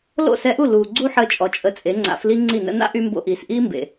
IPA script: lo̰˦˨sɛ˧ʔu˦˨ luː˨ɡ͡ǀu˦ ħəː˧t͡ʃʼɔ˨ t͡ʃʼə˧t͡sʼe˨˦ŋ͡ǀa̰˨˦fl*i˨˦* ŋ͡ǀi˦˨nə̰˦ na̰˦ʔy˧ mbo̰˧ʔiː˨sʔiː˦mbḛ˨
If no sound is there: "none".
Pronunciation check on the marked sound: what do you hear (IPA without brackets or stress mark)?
i˦